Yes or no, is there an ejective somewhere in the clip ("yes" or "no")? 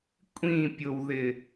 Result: yes